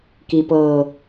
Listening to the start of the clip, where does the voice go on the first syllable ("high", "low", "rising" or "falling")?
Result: low